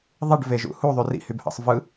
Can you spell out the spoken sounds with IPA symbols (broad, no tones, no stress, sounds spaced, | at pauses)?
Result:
ðˤ i ɖ v e ʒ ṵ h u ðˤ y r ḭ h y b h ɑ̰ sˤ v ɯ